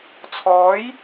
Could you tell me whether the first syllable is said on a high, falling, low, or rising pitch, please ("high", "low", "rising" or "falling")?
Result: rising